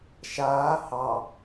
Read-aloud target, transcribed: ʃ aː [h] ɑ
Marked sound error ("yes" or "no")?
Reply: no